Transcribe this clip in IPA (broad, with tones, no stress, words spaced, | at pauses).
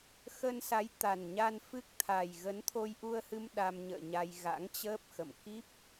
xə˧nsa˨˦jt̪a˨˩nɲa˧n fɨ˦˥k̚ t̪ʰa˨˩j ɣə˨˦nt̪ʰo˧jʔu˧ə̯hɨ˧m ɗa˧mɲə̰ː˧˨ɲa˧j ɣa̰˧˥ŋt͡ɕəː˦˥p̚xə̰˧˨m ki˦˥p̚